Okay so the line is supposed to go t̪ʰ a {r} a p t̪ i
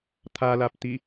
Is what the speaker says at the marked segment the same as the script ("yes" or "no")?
no